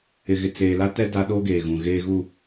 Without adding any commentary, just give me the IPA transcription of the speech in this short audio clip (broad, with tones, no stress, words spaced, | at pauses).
ɪ˨ɣɪ˨ t͡seː˨la˦tɛ˦ da˦ ɗo˦ ɡeː˨ɣũ˨ ɣeː˨ɣu˨